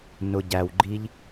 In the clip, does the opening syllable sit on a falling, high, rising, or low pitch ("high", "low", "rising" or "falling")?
low